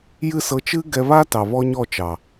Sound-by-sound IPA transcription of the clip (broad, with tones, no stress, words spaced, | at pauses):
jɨ˦˨sɤ˧t͡ʃɨ˦ ɡɛ˧βa˦tɑ˨ βɔ˦ɲɔ˦˨t͡ʃɑ˨